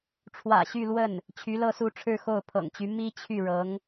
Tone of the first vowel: low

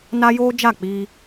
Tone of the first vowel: high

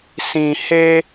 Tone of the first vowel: low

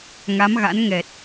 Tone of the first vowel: rising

